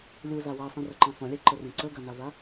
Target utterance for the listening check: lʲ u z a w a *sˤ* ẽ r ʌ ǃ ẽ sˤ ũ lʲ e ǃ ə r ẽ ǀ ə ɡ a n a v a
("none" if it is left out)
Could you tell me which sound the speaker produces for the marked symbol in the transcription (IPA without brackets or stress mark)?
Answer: sˤ